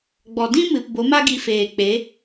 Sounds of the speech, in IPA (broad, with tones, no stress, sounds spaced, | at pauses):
ɡ͡b ɔ˨ d ĩ˦ m ɨ˨ p b o˨˦ m a˦ ɡ i˧ f eː˨ k͡p e˨˦